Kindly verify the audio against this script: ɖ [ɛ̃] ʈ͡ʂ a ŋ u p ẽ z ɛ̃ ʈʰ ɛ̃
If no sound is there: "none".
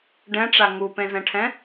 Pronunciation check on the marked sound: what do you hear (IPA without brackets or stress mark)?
ɛ̃